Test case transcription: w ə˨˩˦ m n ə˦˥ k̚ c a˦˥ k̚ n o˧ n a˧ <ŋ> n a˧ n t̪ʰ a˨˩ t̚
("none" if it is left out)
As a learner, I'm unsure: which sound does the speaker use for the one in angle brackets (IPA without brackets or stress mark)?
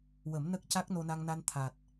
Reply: ŋ